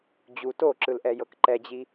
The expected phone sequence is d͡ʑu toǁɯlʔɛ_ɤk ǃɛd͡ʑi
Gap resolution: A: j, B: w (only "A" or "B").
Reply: A